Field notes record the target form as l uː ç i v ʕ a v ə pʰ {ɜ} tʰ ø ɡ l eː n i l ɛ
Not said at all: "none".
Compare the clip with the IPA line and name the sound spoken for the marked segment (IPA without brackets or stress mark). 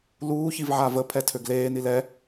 ɛ